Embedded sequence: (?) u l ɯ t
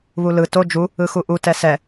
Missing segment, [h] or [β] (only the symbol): β